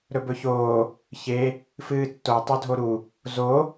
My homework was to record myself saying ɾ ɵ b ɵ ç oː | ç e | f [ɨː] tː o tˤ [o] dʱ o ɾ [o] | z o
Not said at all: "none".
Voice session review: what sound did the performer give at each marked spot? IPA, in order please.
ɨː, ɵ, u

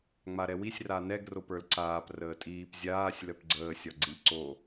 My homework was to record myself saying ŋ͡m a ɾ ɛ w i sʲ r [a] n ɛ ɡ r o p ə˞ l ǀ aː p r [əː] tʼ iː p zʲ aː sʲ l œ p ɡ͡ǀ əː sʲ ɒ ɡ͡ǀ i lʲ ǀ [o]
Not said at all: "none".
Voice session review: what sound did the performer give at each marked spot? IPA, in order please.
a, əː, o

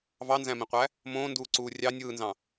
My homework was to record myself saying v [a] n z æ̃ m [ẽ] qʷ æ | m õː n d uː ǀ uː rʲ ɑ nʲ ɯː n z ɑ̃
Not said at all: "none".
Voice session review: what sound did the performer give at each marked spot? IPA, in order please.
ɑ, ĩ

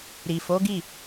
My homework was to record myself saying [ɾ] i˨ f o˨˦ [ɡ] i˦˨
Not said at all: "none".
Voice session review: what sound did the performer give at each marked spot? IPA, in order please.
ɾ, ɡ

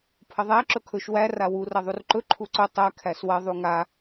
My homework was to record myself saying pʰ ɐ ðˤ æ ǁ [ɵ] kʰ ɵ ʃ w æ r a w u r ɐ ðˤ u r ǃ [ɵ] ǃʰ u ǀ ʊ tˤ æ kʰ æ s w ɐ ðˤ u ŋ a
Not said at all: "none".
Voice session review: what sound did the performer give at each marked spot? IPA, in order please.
ɵ, ɵ

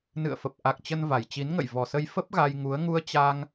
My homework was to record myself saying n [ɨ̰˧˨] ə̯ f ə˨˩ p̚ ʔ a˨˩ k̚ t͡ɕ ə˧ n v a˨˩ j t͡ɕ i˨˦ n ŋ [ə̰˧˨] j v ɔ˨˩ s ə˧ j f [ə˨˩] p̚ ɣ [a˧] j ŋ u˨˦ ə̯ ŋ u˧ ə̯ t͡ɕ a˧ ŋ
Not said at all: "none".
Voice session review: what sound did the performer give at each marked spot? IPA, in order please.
ɨ̰˧˨, ə̰˧˨, ə˦˥, a˧

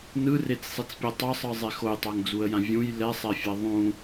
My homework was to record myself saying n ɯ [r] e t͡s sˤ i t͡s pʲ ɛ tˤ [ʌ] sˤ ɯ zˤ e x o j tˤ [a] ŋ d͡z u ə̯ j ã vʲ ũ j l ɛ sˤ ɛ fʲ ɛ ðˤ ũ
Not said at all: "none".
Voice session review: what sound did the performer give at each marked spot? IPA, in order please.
r, ʌ, a

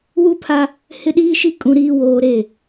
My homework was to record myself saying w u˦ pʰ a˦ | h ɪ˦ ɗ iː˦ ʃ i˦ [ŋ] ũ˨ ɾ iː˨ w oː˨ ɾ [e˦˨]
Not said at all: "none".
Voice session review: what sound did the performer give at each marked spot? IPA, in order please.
kʼ, e˦˨

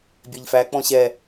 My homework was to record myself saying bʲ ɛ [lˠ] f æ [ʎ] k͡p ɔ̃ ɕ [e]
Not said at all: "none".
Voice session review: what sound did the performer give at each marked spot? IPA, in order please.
ʎ, none, ɛ

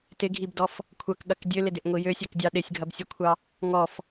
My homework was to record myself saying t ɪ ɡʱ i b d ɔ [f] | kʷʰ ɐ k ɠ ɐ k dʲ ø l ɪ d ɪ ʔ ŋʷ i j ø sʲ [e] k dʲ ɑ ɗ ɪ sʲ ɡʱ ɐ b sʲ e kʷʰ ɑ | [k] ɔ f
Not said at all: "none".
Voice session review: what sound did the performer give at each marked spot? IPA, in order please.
f, ø, ŋ

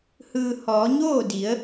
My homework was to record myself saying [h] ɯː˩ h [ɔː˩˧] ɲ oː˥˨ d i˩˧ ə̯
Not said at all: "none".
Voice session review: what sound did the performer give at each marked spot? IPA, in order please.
h, ɔː˩˧

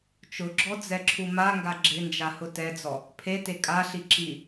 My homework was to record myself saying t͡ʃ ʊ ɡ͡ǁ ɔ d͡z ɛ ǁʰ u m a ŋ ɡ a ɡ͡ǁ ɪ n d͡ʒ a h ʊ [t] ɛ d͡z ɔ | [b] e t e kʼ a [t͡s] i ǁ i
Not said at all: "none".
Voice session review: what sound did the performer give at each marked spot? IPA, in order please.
t, pʰ, ɬ

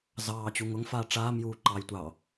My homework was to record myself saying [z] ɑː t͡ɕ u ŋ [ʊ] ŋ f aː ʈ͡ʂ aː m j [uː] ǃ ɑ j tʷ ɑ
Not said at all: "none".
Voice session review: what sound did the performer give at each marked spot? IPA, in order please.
z, ʊ, uː

